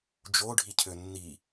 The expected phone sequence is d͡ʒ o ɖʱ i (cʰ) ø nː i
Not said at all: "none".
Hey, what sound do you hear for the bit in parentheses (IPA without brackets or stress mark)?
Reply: cʰ